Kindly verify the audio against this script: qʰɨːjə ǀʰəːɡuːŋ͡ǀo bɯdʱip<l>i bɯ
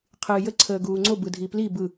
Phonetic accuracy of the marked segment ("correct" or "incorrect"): correct